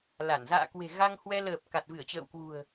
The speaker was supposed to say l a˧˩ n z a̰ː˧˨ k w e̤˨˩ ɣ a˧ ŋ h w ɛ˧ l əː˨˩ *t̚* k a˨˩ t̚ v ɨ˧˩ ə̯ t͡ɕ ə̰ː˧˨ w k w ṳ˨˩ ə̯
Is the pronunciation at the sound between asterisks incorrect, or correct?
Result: incorrect